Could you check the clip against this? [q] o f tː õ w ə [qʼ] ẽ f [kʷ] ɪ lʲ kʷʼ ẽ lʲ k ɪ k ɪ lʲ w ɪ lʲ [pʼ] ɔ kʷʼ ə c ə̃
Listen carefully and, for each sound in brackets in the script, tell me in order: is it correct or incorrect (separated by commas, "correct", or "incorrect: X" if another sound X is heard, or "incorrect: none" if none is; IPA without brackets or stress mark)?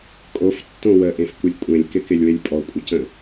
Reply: incorrect: kʼ, incorrect: ʔ, correct, correct